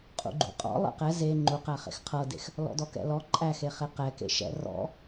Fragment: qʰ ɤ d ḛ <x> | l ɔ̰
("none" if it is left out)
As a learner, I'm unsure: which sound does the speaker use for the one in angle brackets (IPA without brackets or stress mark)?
x